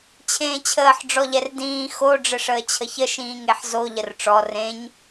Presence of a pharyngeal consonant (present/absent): present